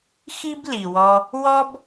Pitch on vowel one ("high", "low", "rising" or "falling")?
high